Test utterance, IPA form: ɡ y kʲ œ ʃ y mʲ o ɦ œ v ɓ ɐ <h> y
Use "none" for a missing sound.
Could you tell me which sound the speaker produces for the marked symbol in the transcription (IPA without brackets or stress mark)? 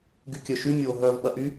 ʔ